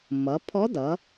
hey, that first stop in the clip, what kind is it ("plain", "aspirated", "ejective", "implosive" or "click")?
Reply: aspirated